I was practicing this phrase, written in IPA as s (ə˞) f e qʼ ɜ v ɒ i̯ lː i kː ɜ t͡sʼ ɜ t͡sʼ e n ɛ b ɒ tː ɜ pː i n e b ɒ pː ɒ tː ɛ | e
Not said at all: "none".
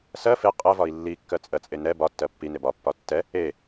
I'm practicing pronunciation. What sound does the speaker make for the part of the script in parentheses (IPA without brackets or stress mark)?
ɜ